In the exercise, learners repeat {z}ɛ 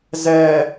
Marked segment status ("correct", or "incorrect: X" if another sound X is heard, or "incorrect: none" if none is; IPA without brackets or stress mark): correct